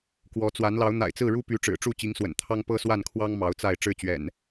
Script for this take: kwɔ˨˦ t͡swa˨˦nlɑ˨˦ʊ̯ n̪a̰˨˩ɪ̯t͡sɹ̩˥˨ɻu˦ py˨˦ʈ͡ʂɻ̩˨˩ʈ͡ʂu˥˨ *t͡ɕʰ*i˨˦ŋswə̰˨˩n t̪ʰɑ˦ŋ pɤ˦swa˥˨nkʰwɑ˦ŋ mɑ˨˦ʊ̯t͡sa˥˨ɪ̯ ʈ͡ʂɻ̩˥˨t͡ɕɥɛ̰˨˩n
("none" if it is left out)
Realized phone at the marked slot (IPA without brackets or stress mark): t͡ɕ